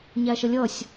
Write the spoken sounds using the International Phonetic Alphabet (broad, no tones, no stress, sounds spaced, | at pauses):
ɲ æ ʃ ə lʲ ʌ sʲ